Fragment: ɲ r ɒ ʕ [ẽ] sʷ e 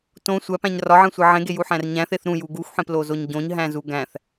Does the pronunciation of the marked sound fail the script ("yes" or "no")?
no